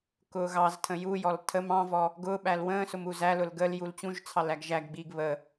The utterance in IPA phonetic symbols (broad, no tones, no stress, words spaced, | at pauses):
kʊːɣɑztʰə̃ jujɔl tʰəm ɑ̃vɔ | ɡʊːɓæl wə̃ːsʊm uzælʊl ɡəl jult͡ɕũʒt͡sʰɑl æɡʒæɡɡ͡biːɡ βə